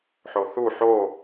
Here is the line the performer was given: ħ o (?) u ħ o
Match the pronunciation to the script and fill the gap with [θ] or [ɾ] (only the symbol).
θ